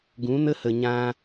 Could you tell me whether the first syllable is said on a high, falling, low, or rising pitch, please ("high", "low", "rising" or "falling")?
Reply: rising